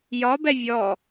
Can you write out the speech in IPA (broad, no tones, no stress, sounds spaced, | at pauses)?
j ɒ b ɛ vʲ ɔ